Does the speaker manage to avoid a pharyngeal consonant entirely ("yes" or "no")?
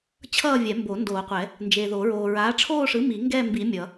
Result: yes